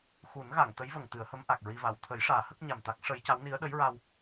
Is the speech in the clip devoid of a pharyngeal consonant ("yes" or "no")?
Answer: yes